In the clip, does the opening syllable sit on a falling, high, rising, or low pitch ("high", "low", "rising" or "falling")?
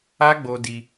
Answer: high